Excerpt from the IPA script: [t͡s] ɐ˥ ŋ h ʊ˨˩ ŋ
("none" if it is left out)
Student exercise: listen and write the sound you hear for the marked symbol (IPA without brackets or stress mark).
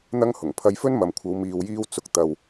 n̪